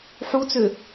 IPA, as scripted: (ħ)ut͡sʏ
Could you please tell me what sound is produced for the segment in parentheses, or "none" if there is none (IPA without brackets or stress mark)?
ħ